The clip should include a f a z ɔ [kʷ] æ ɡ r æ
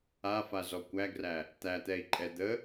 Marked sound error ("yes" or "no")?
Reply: no